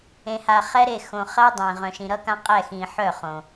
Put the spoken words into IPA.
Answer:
ẽ˨ha˨χɛ˦ɾe˦˨ xõ˨ χɜ˦dˤẽ˨ ʁœ̃˨ʃĩ˨ɾʌ˦kã˦ qʼɛ˦˨xĩ˨ ħœ˦˨χõ˨

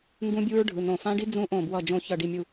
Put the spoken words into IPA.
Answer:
ŋɡũ˦˥bʲu˦˥ɹɖʱɯ˩˧˩ nõ˧˩ fã˦˥ɖi˦˥ d͡zũ˦˥ʔõ˧˩bwʌ˧˩ d͡ʒõ˧˩ çʌ˧˩ɖi˧˩mʲu˧˩

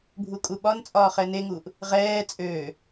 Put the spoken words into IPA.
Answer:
bʱukʼuɓɒnt͡sʼɒː χɛneŋuːʔ | ʁɛː t͡sʼøː

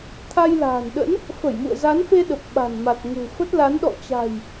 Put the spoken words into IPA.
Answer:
t̪ʰa˧jla̤ː˨˩nɗə̰˧˥n | fə˧˩jmṵ˧˨ə̯za˨˦nfe˧ ɗə˨˩p̚ɓa̤˨˩n ma˨˩t̚ŋṳ˨˩fə˦˥t̚la˨˦n ɗɔ̰˧˨t͡ɕa̤˨˩j

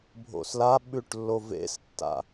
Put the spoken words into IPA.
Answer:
bʱo̰slaɓʉʈlːo vḛstːa̰

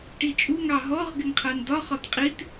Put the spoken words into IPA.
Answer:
ʈit͡ʃʼu ŋɑɦɔʁ ɡɪŋqʰɜndɒ χɒtqʼit

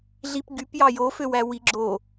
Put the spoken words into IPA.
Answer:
ɮipɡypjɑ joføwæ wiɡ͡ǁo

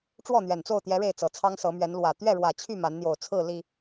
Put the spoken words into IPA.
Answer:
ʈ͡ʂwɔ˥˨n̪ɥɛ˨˩nt͡so˥˨ʊ̯t̪jɛ˨˦ ɻe˥˨ɪ̯t͡sɤ˨˩ t͡sʰɑ˦ŋsɤ˨˦mɥɛ˨˦n lwä˨˩ t̪ɥɛ˥˨ɻwä˨˩ t͡ɕʰy˥˨ ma˨˦nn̪jo˨˩ʊ̯ t͡sʰɹ̩˥˨ li˨˩

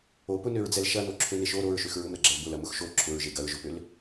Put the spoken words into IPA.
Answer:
opʊnøɹd͡zɛl ʃɐnoǁʰøneʃ o ɾoɹʃøx ɹʊmɾɐɡ͡ǁɐl bʊlɐmʊx ʃo ǁʰʊɹʒe ɡɐɹʒʊpøl

